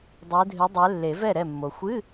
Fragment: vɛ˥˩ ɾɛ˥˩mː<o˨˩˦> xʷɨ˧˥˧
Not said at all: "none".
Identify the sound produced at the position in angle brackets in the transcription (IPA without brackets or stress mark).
o˨